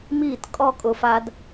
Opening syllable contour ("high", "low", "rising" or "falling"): falling